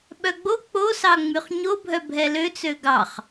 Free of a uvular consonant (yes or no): no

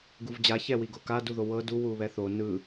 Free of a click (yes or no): yes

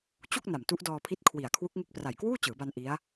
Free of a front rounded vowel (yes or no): yes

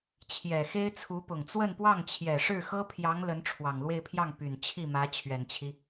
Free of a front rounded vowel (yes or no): no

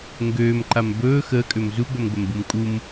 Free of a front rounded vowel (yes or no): no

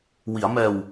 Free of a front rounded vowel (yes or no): yes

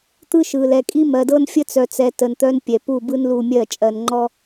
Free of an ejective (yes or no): no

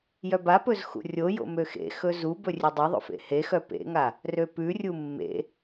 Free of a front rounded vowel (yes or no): no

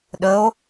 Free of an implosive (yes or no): no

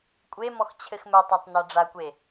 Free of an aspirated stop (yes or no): no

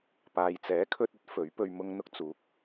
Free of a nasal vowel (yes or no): yes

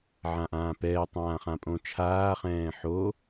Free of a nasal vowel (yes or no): no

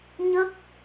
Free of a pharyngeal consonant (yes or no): yes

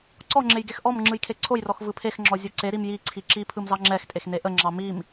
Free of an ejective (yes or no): no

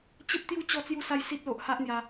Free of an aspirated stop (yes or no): yes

